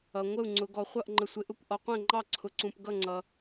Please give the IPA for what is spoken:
ʌ˧ ŋʷ ə˥˧ u̯ ŋ͡ǀ ʊ˧ ɡ ɔ˧ χʷ ʌ˥˧ ʔ ŋ͡ǃ ə˧ sʷ ɪ˧ ʔ ʊ˥˧ kʷ ʔ ɔ˧ qʷ ɛ̃˥˧ ŋ͡ǃ ɑ˥˧ ǀʰ ʊ˧ ǀ ũ˧ p ɡ ʌ˥˧ ŋ͡ǀ ʌ˧

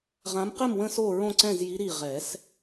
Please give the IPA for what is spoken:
ʁ ã˨˦ m q ɘ˥˨ m w ə̃˥˨ s o˥˨ ɹ õ˥˨ ǀ ɛ̃˥˨ z j i˨˦ ɾ i˧˩ ʁ ɛ˨˩˦ s

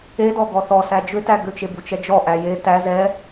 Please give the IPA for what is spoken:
e d ɔ ɡ ɔ θ ɔ s æ d͡ʒ ʏ t æ ɡ ʏ t͡ʃ e b u t͡ʃ ɛ d͡ʒ ɔ ʔ æ j e t æ z ɛ

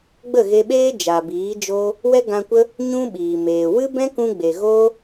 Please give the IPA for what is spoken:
ɡ͡b ə˦˨ ɣ e˧ ɓ eː˦ d͡ʒ a˨ b iː˨˦ d͡ʒ o˦ | w ɛ˦ ɡ ã˧ kʷ ə˦ | ɲ ũ˦ ɓ iː˨ m eː˨ w ɨ˦ b ɛ̃˦ k ũ˧ ɡ͡b e˨ ɣ o˦

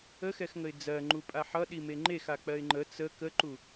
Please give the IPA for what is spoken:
ə x ɛ x ŋ ə ɪ̯ d͡z ɜ ŋ͡ǃ u pʼ a ħ ʌ ɗ i m e ŋ͡ǃ e x a k͡p ɜ ɪ̯ ŋ͡ǃ ə t͡s ə k ə ǃ u

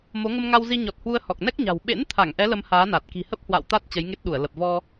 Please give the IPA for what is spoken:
m o˨˦ ŋ ə˧ m ŋ a˧ w z i˧ ɲ ɔ˨˩ t̚ h w u˧ ə̯ h ɔ˨˩ k̚ n ɛ˦˥ k̚ ɲ a̤˨˩ w ɓ ḛ˧˥ n t̪ʰ a˧˩ ŋ ʔ ɛ˨˦ l ə˧ m h aː˨˦ n a˨˩ t̚ k i̤˨˩ h ə˦˥ p̚ h w a̰˧˨ w t̪ a˦˥ t̚ t͡ɕ ə˨˦ j ŋ e˦˥ t̚ ɗ u˧˩ ə̯ l ə˨˩ p̚ v ɔ˧

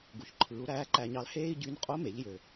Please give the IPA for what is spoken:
ɡ u˩ ç ǃʰ ɯː˩˧ u̯ ɾ æː˧˥ ǃ æ˧ ɲ ɑ˧ l h eː˥ i̯ ɟ y˧˥ n qʼ o˧˥ m e˩˧ ʎ j ø˩

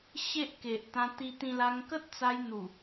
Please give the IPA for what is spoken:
ɕ e˦ ʔ k e˨ ʔ t̪ ã˧ t̪ i˧ t̪ ĩ˧ l a˧ ŋ k ə˦ t̚ t͡s a˧ j n̪ u˨˩

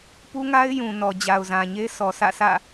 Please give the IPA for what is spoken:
p u˦ ŋ a˦ ɪ̯ j ũ˨ n ɔ˨ d͡ʑ a˨ ʊ̯ z ã˨ ɲ e˦ s ɔ˨ s ä̰˦˨ sʰ ä̰˦˨

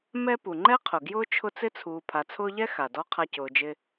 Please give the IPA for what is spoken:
m ɛ˦ p u˩ ŋ͡ǃ ɛ˥ qʰ ʊ˩ ɡ j ʊː˥ t͡ʃʰ ʊ˦ t͡s ɪ˥ t͡sʰ uː˨ pʰ a˨ t͡sʰ ʊː˦ ʎ ɛ˥ x a˩ d ɔ˥ qʰ a˦ c ʊː˨ d͡ʒ ɪ˦

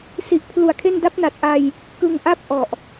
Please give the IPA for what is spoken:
s i˨˩ ʔ pʰ l u˨˩ a̯ kʰ e˥˩ n d a˦˥ p̚ n a˨˩ t̚ ʔ a˧ j | k ɯ˧ ŋ ʔ a˥˩ p̚ ʔ ɔ˨˩ ʔ

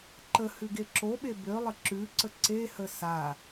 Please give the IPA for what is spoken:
ǃ ə h ʉ ɡ e ǁ o ɓ e b ø lˠ ə ǁ ʉ ǀ ə ǀ e h ə s a

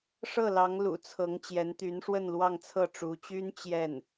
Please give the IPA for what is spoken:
ʂ ɤ˥˩ l ɑ˧˥ ŋ l ṵ˨˩ t͡sʰ ɤ˧˥ ŋ t͡ɕ j ɛ˧˥ n t̪ y˧˥ n ʂ w ə˥˧ n l w ɑ˥˧ ŋ t͡sʰ ɤ˥˩ ʈ͡ʂ u˧˥ t͡ɕ y˥ n t͡ɕ j ɛ˥˩ n

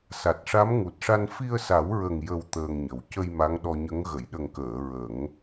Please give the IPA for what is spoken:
s a˨˩ t̚ ʂ a˧˥ m ŋ u˨˩ t̚ ʂ a˧ n f i˧ ə̯ s a˨˩˦ w ɹ ə˨˩ ŋ j ə˨˩ w t̪ əː˧ ŋ ɲ ə˨˩ w c ə˧ j m a˧˥ ŋ ɗ ɔ˧ ɲ ə˧˥ ŋ ɣ ə˨˩˨ j ɗ ə˨˩ ŋ k əː˨˩˨ ɹ ə˨˩˦ ŋ

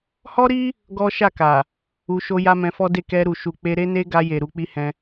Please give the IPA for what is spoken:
h ɔ˦ ɾ i˦ | ɡ ɔ˦ ʃ a˦˨ k a˨ | u˧ ʃ o˦ j a˦ m ɛ̃˧ f ɔ˦ d e˦˨ k ɛ˧ ɾ u˨ ʃ u˨ k͡p e˧ ɾ e˦ n e˦ ɡ a˧ j e˨ ɾ u˨ k͡p i˧ h ɛ̃˧

